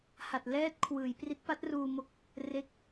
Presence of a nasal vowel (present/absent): absent